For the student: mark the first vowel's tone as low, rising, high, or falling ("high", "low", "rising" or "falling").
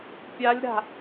rising